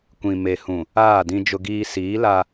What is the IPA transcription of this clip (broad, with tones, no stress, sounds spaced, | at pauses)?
kʷ ĩ˨ m e˨ h ũ˨ | aː˦˨ d ĩ˦ d͡ʒ ʊ˦ ɡ iː˦ s iː˨˦ l a˦